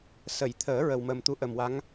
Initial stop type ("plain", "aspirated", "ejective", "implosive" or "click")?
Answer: aspirated